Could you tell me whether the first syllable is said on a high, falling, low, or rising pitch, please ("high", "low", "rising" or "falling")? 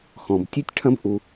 low